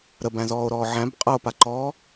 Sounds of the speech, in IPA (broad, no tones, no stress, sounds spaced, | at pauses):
ɾ ə b æ̃ z ɔː o̯ ɾ ɔː ʕ æ̃ b qʼ ɤ o̯ p a ǃ ɔː